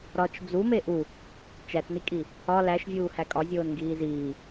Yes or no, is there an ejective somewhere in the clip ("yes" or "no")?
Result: yes